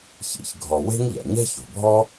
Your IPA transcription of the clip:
ç ḭ˩ ç ɡʱ ɔ˩ w e̤˥ ŋ ʎ a̰˩ ɲ ɛ̤˥ ç o̤˩ bʱ ɔ˥

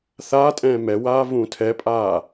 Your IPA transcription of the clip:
θ aː tʼ ɛ̃ː m ɛ w aː v ũː tʰ ɛ pʼ aː

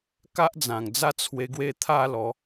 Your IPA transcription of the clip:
k a˦ ʔ d͡z ã˨˩ ŋ d͡z a˥˧ t͡sʰ w e˧ ɡ w e˦ t̪ʰ a˥˧ l ɔ˨˦

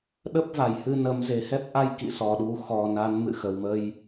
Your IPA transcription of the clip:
ɗ ə˦˥ p̚ v a˧˩ j h ɨ˧ n ə˨˦ m z e˨˩ h ɛ˦˥ p̚ ʔ a˧ j k ḭ˧˨ s ɔ˨˩ ɗ u˨˦ x ɔ˨˩ n a˨˦ n m ɨ̰˧˨ x ə˨˩ w m ə˧ j

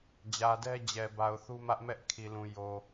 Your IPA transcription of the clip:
d͡ʑ ä˨ d ɛ˦ d͡ʑ ɛ˨ b a˨ ʊ̯ θ u˦ m ä˦ ʔ m ɛ˦ ʔ kʰ i˨ l ũ˨ j o˨

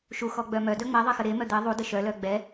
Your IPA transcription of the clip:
ʃ u x ɔ ɡ͡b œ m œ d œ ŋ͡m ɛ ðˤ e x ə ɾ e m œ d̪ e ðˤ u d ə ʃ œ l œ ɡ͡b ɛ

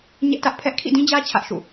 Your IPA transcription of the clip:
ɲ ɛ˦ ʔ t ä˦ ʔ pʰ ɛ˦ ʔ kʰ ḭ˦˨ d ĩ˦ d͡ʑ ä˦ t͡ɕʰ ä˦ ʔ ʃ ṵ˦˨

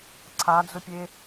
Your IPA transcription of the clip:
ǀʰ a d͡z ʊ pʲ e

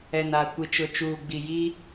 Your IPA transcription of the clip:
ɛ˨ n a˨ kʷ i˨ t͡ʃ ʊ˨ t͡ʃ uː˨ ɡ͡b i˨ j i˦

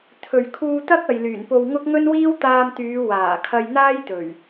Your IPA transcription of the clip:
t̪ʰ ɵ˨ ɥ kʰ uː˧ t̪ ɐ˥ k̚ ɐ˨ j l yː˨˩ n p o˧ w ŋ ʊ˥ k̚ ŋ ɵ˥ n w iː˥ w t̪ aː˧ m t̪ yː˨˧ w aː˨˩ kʰ ɐ˧ j n̪ aː˥ j t̪ ɵ˨˩ ɥ

